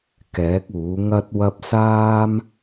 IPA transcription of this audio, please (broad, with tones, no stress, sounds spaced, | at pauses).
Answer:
k ɛː˨˥ k̚ uː˨˥ ŋ ɐ˥ t̚ w ɐ˥ p̚ s aː˥ m